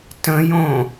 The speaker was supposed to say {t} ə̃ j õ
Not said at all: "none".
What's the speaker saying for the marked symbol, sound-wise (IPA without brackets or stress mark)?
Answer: t